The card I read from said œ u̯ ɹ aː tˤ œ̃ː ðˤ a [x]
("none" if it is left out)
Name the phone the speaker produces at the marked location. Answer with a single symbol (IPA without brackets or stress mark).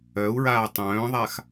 x